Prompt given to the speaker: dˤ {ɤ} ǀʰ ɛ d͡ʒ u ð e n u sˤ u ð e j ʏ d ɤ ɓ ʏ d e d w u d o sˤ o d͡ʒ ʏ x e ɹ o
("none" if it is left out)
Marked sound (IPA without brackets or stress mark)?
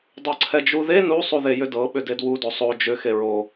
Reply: ɤ